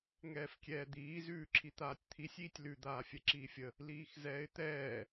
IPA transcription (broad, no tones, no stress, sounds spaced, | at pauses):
ŋ ɛː f kʲ ɛː d̪ iː z ʉː ǁʰ i t̪ aː tʲ t̪ʰ i sʲ iː tʲ l ʉ d̪ aː fʲ ɛ ǁ iː fʲ ə | l iː x z ɛː ɪ̯ t̪ ɛː